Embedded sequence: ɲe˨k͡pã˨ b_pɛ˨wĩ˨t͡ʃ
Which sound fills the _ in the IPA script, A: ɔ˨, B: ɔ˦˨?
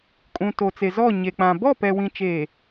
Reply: B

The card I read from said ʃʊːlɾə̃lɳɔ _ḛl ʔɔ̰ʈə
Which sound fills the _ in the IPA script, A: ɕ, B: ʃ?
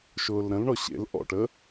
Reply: A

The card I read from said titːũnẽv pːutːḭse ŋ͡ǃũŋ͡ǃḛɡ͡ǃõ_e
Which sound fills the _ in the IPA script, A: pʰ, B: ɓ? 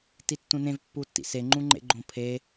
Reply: A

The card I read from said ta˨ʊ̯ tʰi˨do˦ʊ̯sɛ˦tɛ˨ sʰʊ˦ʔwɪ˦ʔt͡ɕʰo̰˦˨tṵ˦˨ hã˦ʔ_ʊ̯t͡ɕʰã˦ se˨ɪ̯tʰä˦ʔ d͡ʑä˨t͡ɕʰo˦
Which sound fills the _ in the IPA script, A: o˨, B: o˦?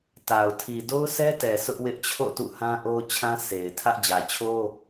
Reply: B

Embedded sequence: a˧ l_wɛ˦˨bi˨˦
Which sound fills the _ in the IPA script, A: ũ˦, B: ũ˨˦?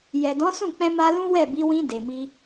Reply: A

